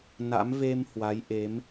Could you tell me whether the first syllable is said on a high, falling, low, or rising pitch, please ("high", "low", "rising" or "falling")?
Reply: rising